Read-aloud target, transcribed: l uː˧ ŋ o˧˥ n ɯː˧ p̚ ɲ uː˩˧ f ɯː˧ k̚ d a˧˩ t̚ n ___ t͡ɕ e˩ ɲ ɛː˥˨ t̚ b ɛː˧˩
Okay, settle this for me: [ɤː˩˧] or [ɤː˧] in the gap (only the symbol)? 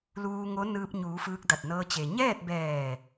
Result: ɤː˧